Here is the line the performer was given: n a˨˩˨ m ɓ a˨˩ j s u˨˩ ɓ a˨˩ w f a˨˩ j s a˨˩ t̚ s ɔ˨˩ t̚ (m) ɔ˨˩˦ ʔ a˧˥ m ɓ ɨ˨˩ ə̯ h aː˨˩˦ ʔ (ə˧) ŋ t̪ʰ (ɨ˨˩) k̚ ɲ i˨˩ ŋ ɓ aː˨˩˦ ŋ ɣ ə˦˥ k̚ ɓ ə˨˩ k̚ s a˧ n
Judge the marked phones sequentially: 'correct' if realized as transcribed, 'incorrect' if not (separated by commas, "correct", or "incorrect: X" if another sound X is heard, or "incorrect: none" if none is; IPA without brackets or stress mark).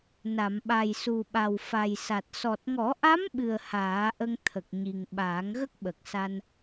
incorrect: ŋ, correct, incorrect: ə˨˩